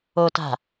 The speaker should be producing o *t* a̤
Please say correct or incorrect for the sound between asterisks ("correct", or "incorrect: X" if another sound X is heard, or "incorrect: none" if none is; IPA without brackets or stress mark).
correct